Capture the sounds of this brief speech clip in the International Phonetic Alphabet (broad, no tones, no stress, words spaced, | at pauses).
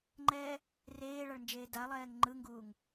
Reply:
ŋ͡ǃɛː | reːɭaɭnd͡ʒeː dalˠɛːŋ ŋ͡ǃɯŋɡuːŋ